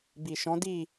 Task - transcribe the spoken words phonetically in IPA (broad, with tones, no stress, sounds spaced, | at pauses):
b i˨ ʃ ɔ̃˨˦ d i˦˨